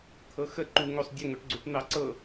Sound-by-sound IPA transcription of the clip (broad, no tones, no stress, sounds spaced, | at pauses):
t̪ʰ ɤ x ə ǃ u ŋ o sˤ dʲ ə ŋ o ʈ ɡ͡ǀ u ʈ n̪ ɑ ǀ ɤ